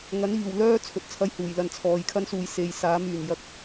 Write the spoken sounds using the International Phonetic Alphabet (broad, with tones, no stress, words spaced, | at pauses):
ŋɐ˨˥niː˨˩wlœː˥ t͡sʰɵ˧t̚t͡sʰɐ˥jhuː˨˩jlɐ˧n t͡sʰɔː˨j kʰɐ˥nsuː˨j se˨jsaː˨˥m yː˨˩n jɐ˨˥k̚